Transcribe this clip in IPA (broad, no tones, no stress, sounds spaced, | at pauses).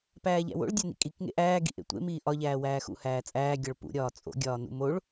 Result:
p æː ʎ æ̰ w o̰ ɭ dʲ æ n ḭ kʼ i k ŋ ḛ ʔ æː ɡ ḭ ʔ ḛ tʷ ḛ m iː ʔ ɒ ʎ æː w æː x ṵ h æː t͡sʼ æː ɡʲ ɒ ɭ p ṵ ɾʲ ɒː t͡sʼ o̰ ɡʲ ɒː n ṵ m o ɭ